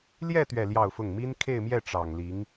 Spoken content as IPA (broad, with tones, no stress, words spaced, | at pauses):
ljɛ˥˧ t̪ɥɛ˥˧ljɑ˥˧ʊ̯fʊ˥˩ŋ mi˥nkʰe˥˧ɪ̯mjɛ˥˩ ʈ͡ʂɑ˨˩ŋli˧˥ŋ